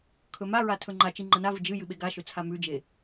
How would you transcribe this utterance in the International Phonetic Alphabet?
kʰɵmaɹa tʰɵŋ͡ǃat͡ʃi ŋ͡ǃɐnavɨ d͡ʒɨ jɨɓeɡaʃɵ t͡sʰamʉd͡ʒe

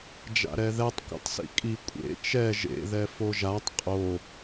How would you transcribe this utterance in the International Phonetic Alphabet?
d͡ʒa̰ɾɛðɛtˤ kʷa̰tˤsḭkʼi kʷʼḛ t͡ʃɛ ʒḛ ðɛfoʒatˤ qʼo

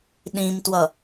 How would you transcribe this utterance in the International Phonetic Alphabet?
ɗĩmtwʌ

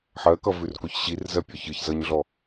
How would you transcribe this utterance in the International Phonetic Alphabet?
ħɜkʌvʉrkoç ɕirzɜpʲɔ çɯçzʌɲɮɔ

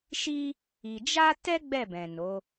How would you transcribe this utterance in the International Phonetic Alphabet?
ʃi˦ | i˧ d͡ʒa˦tɛ˦ ɡ͡bɛ˦˨bɛ̃˨no˨˦

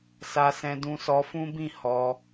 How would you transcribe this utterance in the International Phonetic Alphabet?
sa˧sɛ̃˧ dũ˧sɔ˧fũ˦bĩ˦˨ hɔ˧

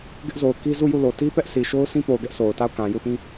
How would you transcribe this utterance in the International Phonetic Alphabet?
ɡɪ˦ʔzo˨ʊ̯ki˦ zu˦˨ju˦˨lo˨ ti˦pɛ˦ʔ si˨ ʃo˦ʊ̯sĩ˦po˨ʊ̯ɡɛ˦ʔ so˨ʊ̯ta˦˨ʊ̯ kã˨ ju˦˨θĩ˦

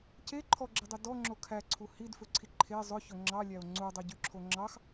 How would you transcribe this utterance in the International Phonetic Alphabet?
ce ǃʰɔɡ͡ǁedˤe dɔŋ͡ǁo kʰæǀʰu hidfɵǀʰi ǃʰe zˤɵçɵ ŋ͡ǁɑlʲæo̯ ŋ͡ǀudˤiɟyǁʰo ŋ͡ǁɑx

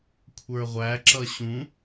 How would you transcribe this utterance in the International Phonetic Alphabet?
kʷʰə˞ʁʷæǁʌ ɕũ

